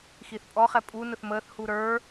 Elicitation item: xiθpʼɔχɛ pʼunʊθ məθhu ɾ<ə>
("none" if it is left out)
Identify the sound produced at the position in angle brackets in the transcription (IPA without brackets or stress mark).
ə˞